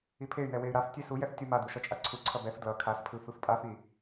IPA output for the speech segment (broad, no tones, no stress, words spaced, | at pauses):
ipʰey̯nɛ wey̯ɾaftʲe sujɛf tʲumadu ʃʌt͡ʃʼaǀʰuǀʰʌ bɛf dlʌ kʰaspʰɯ fɯfpʼafi